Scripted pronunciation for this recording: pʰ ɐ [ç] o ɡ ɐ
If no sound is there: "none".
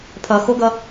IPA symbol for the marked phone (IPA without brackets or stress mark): x